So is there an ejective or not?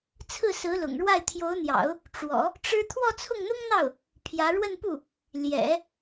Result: no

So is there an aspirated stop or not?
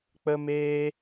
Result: no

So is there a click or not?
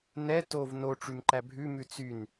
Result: yes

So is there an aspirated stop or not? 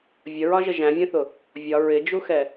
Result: no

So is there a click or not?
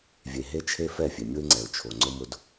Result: yes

